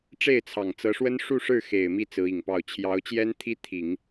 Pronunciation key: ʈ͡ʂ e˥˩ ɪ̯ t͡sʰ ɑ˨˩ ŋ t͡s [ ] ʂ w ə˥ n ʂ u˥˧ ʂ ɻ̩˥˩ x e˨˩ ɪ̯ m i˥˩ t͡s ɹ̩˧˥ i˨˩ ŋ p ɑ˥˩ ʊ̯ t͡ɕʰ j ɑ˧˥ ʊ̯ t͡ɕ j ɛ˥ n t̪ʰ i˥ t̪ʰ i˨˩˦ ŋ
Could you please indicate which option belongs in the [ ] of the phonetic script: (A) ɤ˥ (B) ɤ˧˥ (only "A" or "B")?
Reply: B